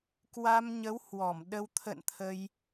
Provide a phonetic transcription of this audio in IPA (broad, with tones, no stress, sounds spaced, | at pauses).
k w a˧ m ɲ ə˨˦ w h w ɔ˧˩ m ɗ ə˧ w t̪ʰ ə̰˧˨ n t̪ʰ ə˧ j